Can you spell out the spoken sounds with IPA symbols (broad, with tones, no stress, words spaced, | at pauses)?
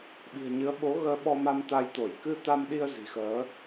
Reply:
ɓi̤˨˩ə̯ɲɨ˨˦ə̯ ɓo˨˦ɣəː˧ɓɔ˧ ma˧mt̪a˧j t̪o˧˩j kɨ˧t̪a˧mɗi˧ə̯ zi̤˨˩xəː˨˦